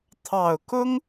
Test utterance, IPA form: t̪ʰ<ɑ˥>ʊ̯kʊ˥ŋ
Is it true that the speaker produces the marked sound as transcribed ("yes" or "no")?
no